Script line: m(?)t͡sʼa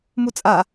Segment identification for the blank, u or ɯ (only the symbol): u